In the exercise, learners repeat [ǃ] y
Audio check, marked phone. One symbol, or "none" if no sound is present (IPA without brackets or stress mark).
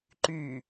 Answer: ǃ